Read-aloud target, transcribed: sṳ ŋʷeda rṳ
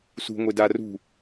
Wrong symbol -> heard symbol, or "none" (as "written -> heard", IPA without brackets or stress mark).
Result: none